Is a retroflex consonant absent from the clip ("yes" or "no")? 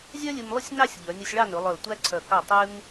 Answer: no